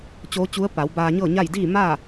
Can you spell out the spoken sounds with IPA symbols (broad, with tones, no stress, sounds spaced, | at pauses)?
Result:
t͡ɕ oː˧˥ t͡ɕ u˧˥ ə̯ p a˩˧ w b aː˧ ɲ ɤː˥˨ ɲ a˥˨ j d iː˥˨ m aː˥˨